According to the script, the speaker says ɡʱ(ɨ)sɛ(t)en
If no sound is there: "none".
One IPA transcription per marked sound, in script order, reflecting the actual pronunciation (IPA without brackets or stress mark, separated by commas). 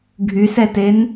y, t